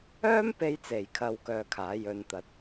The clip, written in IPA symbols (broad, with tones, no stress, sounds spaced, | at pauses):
œː˥ m p e˧ j t͡s e˨˩ j kʰ ɐ˨ w k œː˧ kʰ aː˨˥ j ɵ˨˧ n t̪ ɐ˨˥ t̚